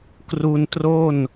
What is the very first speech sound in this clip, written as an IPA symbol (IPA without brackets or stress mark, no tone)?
k